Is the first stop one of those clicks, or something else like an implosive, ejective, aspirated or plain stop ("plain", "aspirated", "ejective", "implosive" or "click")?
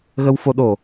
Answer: implosive